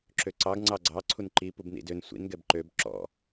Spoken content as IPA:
ǁøǀɑɡ ŋ͡ǀɑɡ͡ǀɑ ǀʰunǃi pubnḭdøn sʷḭn ɡɛbǃøb ǁɔ̰

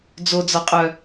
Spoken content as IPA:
d͡zod͡zɒqʼœ

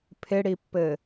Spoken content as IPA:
pʰɪɽipːɘ

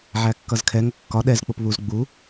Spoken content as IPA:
ʕækːʌzkʰɛ ŋəkːɒ ɗɛz k͡pʊpβuz ɡ͡bu

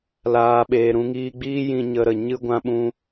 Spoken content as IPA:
laː˨ɓeː˨ ɾũ˧ŋiː˧ɡ͡biː˦ jĩ˧ɲə˧ɾə˨ ɲɨ˧ɡʷã˧ɓũ˧

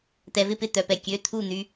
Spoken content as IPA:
t̪ɛ˩vɪ˥˩pɪ˥˩ t̪œ˩pɛ˩ kʲø˩˧˩ t̪ʰu˥˩ n̪y˩˧˩

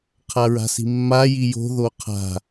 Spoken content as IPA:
qʰaɹa̤si̤mːa jijo̤ ðoqʰa̤

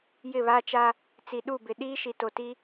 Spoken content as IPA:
jɪ˦˨βa˦t͡ʃa˦ | t͡si˨ɗu˦˨bɪ˨ ɗiː˦ʃi˨to˨ti˦

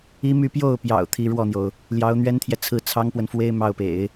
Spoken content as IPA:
i˥my˥˧ pjo˥˩ʊ̯pjɑ̰˨˩ʊ̯ t̪ʰi˧˥ɻwɔ˥˩n̪jo˩ʊ̯ | ljɑ˧˥ʊ̯n̪ɥɛ˥nt̪ʰjɛ˨ t͡sʰɹ̩˥˩t͡sʰɑ˥ŋpwə˨nfwe˥ɪ̯ mɑ˥˩ʊ̯pḛ˨˩˦ɪ̯

